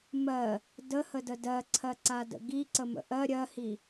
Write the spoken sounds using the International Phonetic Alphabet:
mɜ | dəhədə dɜǀʰɜǀadə̰ ɡiǀəmə̰ ʔɜ ɾʲɜhi

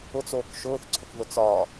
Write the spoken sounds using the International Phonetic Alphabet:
ʊt͡s oːkʃʊːθǀʰʊkðʊ t͡sɒ

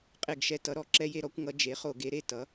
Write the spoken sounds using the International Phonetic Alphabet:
qʼe˦˨ɡʃɛ˦ tʌ˩˥ɾɔ˧˩˧ ǁɛ˦je˦ɾɔ˩˥kʷŋʌ˩˥ d͡ʒe˩˥χo˧˩˧ɡe˩˥ ɾe˦˨tʌ˩˥

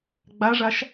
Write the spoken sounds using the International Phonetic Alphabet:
ɡ͡baʐaʃ

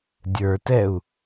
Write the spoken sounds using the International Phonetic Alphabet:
dʲə˞tɛu̯

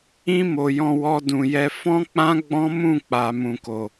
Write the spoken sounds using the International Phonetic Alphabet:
ĩ˧ mo˨jɔ̃˧ wɔ˧dũ˨jɛ˧ fɔ̃˦k͡pã˦ ɡ͡bɔ̃˦mũ˦˨k͡pa˨ mũ˨ko˨

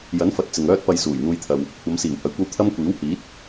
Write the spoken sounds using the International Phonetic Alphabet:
jɐ˨˥nfɐ˨t̚ t͡sɪ˨ŋ œː˥t̚pɐ˧j suː˨˩jn̪uː˧jt̪ʰɐ˨w | kʷʰɐ˨˧msiː˨˩w hɐ˨jkʷɐ˧w t̪ʰɐ˥mkʷiː˨˥whiː˨˥t̚

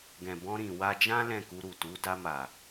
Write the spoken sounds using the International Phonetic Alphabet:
ɡɛ̃˨bɔ̃˧ɾĩ˨ wa˧d͡ʒã˦ lɛ̃˦˨ku˧ ɾu˨tu˨˦ da˧ma˨

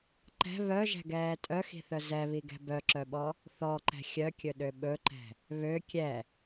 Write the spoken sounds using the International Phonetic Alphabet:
ǃɛ̤ βœʒɛ̤ɡɛː tʼœxi̤θœ zɛβiɡɛ̤ bœǁœɓɔ | θɔǃɛ̤ xʲœkʲɵɗø ɓɵǃɛ̤ | βø kʲɛ

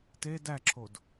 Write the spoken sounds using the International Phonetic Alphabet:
te dæǁʰod

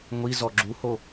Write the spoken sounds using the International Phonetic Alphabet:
ŋʷi zɔɡ͡ǁuho

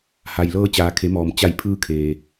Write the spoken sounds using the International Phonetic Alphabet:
ha˩jlɤː˧ t͡ɕaː˩kʰe˩˧mɔː˩m t͡ɕa˧˩jpʰɯː˧ kʰeː˩

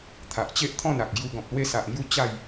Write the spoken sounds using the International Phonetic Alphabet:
t̪ʰa˨ʔt͡ɕe˦ʔt̪ʰɔ̃˥˧n a˨k̚ɡju˧ ɡɔ̃˨p̚lwe˧sa˨ʔŋju˧ t͡ɕa˥˧j

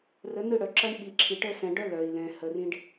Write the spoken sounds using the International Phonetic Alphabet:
rə˨˦nɯ˦˨ɽœ˨ǁʌ˦ɳ ɓi˨ǁʰi˨ʈə˦ sɛ̃˨ɖœ˦ lœ˨i̯lɛ̃˨hə˨ rĩ˦ɖ

